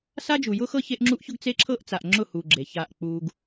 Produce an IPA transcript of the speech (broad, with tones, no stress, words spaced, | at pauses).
sa˦d͡ʒu˨ jʊ˦xɤ˦ çe˦ʔŋ͡ǁu˦ʔçʊ˦ɡ t͡se˦ǁʰɤ˦ʔt͡sa˨ʔ ŋ͡ǁʊ˦˨hu˨ ɡ͡ǁe˨ça˦˨ʔk͡pu˦ɡ